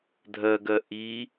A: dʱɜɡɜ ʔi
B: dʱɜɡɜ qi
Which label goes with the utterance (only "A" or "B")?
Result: A